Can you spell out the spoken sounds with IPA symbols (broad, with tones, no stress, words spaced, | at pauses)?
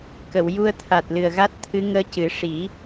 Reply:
kə˨˩˨wju˧ə̯ t̪ʰa˨˩t̚ lɨ˨˩ə̯ɣa˦˥t̚ t̪ʰɨ˧˥ ŋəː˧ cɨ˨˩˦ ʂi˨˩˦